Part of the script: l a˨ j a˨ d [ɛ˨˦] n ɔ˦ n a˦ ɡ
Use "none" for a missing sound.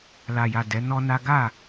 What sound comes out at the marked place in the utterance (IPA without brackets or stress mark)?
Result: ɛ˨˦